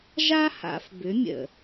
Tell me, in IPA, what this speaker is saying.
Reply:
ʒ a˦ h a̰˨ f b ʏ˨˦ mʲ ə̰˨

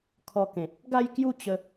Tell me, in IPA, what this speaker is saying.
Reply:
kʰ ɔ˧ k ẽ˨ t̚ | ɡ a˥˧ j k j u˥˧ t͡ɕ ə˧

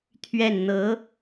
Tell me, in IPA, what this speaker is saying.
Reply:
t̪ʰ ɥ ɛ˥˩ n n̪ ɤ˧˥

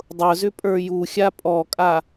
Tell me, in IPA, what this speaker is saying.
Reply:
dˤ ʊ z ʏ pʼ ə˞ j u xʲ a pʼ ɔ kʼ a

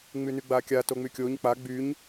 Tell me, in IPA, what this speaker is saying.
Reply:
ŋ͡m y n y ɡ͡b a kʲ a t o ŋ͡m y kʲ o ɲ k͡p a ɡ͡b y ɲ

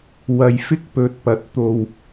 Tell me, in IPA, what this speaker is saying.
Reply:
w ɐ˧ j f ɪ˥ k̚ p ɵ˧ t̚ p ɐ˧ t̚ t̪ o˧ w

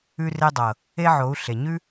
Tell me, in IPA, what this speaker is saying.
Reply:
ʉ˧ r e˧ dˤ ɤ˨ | e˦ ʕ o˨˦ u̯ ɬ e˨ ɲ ʉ˦

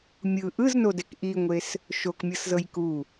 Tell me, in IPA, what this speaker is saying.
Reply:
mʲ ɯ ʔ ɯ z n o d ɛ k ʔ i ŋʷ e s | ʃ o k mʲ ɤ s z ɤ j k u

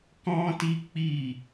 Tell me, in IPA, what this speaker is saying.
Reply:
k ɔ̃˦ t i˦ k͡p i˦˨

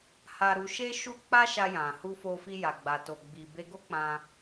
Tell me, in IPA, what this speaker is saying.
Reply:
h a˧ ɾ u˧ ʃ e˦ ʃ u˦ k͡p a˦ ʃ a˧ j ã˨ h u˧ f o˧ f i˧ j a˨ ɡ͡b a˨ t o˨ ɡ͡b i˨ b e˧ ɡ o˦ k͡p ã˧

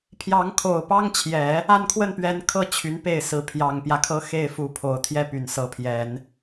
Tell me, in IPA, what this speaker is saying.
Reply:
pʰ j ɑ˧˥ ŋ kʰ o˨˩ ʊ̯ p ɑ˥ ŋ t͡ɕʰ j ɛ˨˩˦ | a˥˧ n kʰ w ə˥˩ n p ɥ ɛ˧˥ n kʰ ɤ˥˩ t͡ɕʰ y˧˥ n p e˥˩ ɪ̯ s ɹ̩˧˥ pʰ j ɑ˨˩ ŋ p j ä˦ kʰ ɤ˥ x e˥˩ ɪ̯ f u˧˥ pʰ o˨˩ ʊ̯ t̪ʰ j ɛ˥ p y˨˩ n s ɤ˧˥ pʰ j ɛ˨˩˦ n

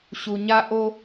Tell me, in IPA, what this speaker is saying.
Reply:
ɕ u˨ ɲ a˦ ʔ o˦

